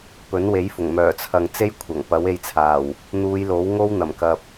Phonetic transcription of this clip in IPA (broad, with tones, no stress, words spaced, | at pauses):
pɵ˨˥nwe˨˥jfʊ˨˩ŋ mœː˨˩t͡sʰɐ˨ŋ t͡se˥j kʷʰɐ˨˩ŋ pɐ˨˥we˧jt͡sʰaː˨˩w | n̪uː˨˧j lo˨˥wŋo˥w n̪ɐ˨˩mkɐ˨p̚